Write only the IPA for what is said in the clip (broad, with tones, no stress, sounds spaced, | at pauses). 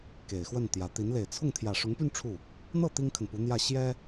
k e˨˩ ɪ̯ x w ə˥˩ n t̪ j ä˧˥ t̪ i˧˥ n l e˨˩ ɪ̯ t͡sʰ ʊ˥˩ ŋ t̪ʰ j ä˨˩ ʂ ʊ˧˥ ŋ p y˥˧ n ʈ͡ʂʰ u˥˩ | n̪ ɤ˥˩ t̪ i˥ ŋ kʰ ə˨ n p u˧˥ n̪ j ä˥˩ ɕ j ɛ˥